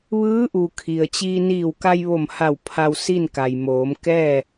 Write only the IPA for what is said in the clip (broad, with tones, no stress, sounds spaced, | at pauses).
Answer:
ʋ ɯː˧˥ ʔ u˩ kʰ i˩ ə̯ t͡ɕ iː˧ n iː˧˩ w k a˧ j ʋ o˧˩ m h a˧˩ w pʰ a˧ w s i˥˨ n k a˩ j m oː˩˧ m k ɛː˥˨